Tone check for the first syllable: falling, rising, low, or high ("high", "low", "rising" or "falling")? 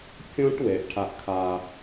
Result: high